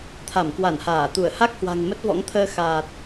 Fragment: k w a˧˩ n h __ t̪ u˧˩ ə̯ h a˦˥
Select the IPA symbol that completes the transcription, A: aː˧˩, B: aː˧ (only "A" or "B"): A